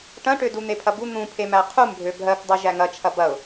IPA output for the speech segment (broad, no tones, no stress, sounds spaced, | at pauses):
ʈ ɐ̃ ʈ ø d u n̪ e pʰ ɐ b u n̪ ũ pʰ e m æ qʰ u m bʱ ø bʱ ɜ k dˤ u ʒ æ ŋ ɐ t͡ʃʰ ɐ b ɐ ʊ̯